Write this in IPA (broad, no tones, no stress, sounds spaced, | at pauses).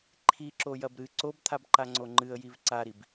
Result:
ǃʰ i ǁ o j ɐ b ɾ ɨ ǀ o b t̪ʰ a b ǃ a ŋ͡ǀ o ŋ͡ǃ ɨ ə̯ j i v ǀ a ɾ i b